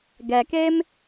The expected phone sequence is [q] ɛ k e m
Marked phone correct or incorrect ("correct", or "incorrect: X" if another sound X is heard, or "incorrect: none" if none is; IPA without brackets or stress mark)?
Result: incorrect: ɡ